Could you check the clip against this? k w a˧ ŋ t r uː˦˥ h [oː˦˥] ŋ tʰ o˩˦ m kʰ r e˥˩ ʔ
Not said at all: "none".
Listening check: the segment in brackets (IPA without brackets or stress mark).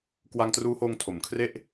oː˧